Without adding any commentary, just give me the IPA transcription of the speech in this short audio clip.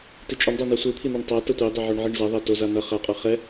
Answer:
tit͡ʃʼʌɳdˤɛ nasʷɯ t̪ʰin̪oɳtˤa tʌtʷidˤɯʕoɳ ʕiɳzʌ ðˤɛtoza nʌ χaqʼʌ χɛ

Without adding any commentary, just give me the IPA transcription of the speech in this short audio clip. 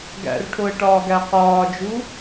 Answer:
ɡæ̰rʈʰoə̯ʈɒː ɡæqɒːd͡ʒu

